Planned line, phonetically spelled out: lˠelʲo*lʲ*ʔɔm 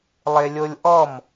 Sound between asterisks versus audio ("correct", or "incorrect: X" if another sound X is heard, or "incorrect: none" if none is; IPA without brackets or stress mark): correct